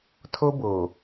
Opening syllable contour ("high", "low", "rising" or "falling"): high